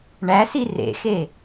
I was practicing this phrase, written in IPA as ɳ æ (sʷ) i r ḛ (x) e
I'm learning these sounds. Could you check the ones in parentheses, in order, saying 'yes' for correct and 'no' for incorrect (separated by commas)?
no, yes